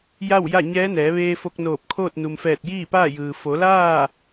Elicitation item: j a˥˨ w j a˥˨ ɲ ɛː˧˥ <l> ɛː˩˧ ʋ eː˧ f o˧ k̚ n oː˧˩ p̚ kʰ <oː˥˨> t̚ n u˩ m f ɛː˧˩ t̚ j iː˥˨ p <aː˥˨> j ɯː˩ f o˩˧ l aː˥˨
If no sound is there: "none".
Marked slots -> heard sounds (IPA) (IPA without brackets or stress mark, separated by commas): n, oː˥˨, aː˥˨